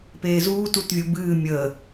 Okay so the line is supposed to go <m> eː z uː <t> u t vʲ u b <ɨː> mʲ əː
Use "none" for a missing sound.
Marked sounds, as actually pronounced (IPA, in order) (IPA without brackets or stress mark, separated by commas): p, t, ɨː